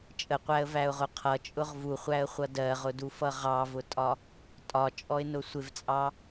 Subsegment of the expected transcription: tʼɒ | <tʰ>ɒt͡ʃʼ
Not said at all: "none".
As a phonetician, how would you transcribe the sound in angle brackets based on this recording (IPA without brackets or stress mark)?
tʼ